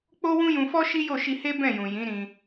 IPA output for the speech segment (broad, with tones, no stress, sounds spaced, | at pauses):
k͡p o˦ w ũ˦ j ũ˧ f ɔ˦ ʃ i˦ j o˦˨ ʃ i˧ h e˦ b ɛ̃˦˨ j ũ˨ j ĩ˨˦ ɾ ĩ˧